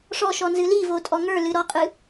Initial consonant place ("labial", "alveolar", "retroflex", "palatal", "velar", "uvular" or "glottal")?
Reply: retroflex